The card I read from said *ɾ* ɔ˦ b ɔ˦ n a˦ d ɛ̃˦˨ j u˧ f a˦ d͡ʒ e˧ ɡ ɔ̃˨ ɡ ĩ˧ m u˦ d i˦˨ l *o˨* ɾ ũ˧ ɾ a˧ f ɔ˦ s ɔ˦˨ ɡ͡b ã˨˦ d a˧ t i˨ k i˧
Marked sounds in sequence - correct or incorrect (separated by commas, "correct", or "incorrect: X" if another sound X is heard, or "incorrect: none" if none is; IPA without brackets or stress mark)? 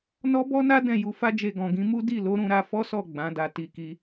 incorrect: n, incorrect: o˨˦